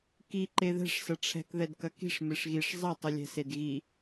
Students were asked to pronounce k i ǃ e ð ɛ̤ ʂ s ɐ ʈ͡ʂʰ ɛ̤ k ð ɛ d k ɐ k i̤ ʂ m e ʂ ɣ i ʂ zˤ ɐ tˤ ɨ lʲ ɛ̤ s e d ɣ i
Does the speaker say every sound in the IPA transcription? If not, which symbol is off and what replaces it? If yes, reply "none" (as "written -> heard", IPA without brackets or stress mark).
none